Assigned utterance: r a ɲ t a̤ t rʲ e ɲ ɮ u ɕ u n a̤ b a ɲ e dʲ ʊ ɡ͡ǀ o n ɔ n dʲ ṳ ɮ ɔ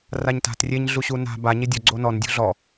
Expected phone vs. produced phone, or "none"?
none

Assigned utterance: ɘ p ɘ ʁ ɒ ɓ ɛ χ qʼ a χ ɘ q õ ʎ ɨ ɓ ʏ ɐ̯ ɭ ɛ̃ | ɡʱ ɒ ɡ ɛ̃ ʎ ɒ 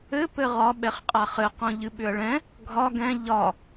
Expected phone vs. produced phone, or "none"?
none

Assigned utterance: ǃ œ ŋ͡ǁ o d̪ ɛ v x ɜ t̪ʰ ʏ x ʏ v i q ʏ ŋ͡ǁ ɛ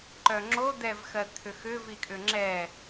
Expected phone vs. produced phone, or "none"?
q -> kʼ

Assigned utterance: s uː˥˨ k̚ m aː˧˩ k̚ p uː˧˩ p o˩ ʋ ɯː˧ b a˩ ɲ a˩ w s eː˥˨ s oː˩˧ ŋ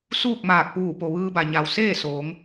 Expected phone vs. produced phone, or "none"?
none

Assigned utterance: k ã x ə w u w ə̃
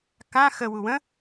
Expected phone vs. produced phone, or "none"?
none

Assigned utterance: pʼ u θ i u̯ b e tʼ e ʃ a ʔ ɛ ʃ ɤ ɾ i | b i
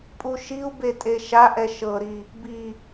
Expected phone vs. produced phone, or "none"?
θ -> ʃ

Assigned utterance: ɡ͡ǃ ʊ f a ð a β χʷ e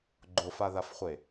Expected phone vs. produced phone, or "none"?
β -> f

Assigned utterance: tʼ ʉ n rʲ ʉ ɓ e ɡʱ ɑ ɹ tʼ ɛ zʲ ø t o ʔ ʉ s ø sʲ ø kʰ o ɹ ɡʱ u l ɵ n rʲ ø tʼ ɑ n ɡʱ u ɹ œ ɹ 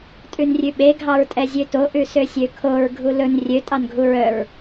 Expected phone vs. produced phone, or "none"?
none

